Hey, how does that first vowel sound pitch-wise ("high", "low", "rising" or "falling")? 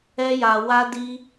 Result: high